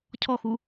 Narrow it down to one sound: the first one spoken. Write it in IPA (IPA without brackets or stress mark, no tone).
cʰ